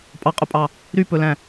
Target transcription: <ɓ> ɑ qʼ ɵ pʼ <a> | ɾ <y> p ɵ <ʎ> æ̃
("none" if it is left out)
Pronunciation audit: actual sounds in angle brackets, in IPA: pʼ, ɑ, y, l

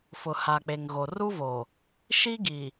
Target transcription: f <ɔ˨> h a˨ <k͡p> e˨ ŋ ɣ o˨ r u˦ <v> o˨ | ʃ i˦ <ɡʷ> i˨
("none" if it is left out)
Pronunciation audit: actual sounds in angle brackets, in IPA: ʊ˨, k͡p, v, ɡ

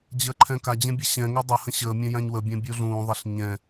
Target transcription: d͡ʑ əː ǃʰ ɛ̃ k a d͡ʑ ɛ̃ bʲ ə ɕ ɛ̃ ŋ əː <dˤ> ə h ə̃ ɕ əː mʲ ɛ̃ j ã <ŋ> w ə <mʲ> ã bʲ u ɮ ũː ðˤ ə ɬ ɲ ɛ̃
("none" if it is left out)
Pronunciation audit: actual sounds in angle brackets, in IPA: dˤ, ɲ, bʲ

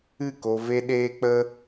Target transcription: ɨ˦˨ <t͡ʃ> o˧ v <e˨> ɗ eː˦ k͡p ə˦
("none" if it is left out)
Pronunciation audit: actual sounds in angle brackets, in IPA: k, e˦

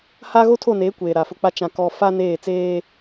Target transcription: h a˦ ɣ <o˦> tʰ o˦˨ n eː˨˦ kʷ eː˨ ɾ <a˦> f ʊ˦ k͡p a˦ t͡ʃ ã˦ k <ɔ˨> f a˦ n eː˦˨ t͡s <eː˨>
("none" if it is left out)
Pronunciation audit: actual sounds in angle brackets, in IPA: o˦, a˨, ɔ˦, eː˦

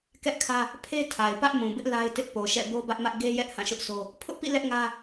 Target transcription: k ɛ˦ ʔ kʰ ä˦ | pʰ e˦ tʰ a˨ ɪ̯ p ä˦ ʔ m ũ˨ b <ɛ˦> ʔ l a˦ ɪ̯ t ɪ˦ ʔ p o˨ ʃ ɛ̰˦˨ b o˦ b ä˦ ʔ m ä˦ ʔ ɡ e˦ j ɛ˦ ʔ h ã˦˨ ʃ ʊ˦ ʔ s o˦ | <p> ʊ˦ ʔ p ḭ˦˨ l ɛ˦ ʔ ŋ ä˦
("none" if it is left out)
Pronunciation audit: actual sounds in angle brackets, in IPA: ɪ˦, pʰ

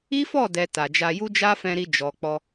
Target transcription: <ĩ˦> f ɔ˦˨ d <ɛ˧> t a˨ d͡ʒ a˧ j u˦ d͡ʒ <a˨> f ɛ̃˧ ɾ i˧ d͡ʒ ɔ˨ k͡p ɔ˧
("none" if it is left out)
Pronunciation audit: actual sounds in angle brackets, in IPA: i˦, ɛ˨, a˦

